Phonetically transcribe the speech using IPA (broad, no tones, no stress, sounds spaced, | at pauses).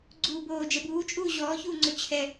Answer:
ɡ͡ǀ uː b oː d͡ʒ ɛ b uː t͡ʃʼ uː ʑ ɔː ç uː ŋ͡ǀ o t͡ɕʰ ɛ